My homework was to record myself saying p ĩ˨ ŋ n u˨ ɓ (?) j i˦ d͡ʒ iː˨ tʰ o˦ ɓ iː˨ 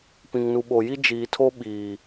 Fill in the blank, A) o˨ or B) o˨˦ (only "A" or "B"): A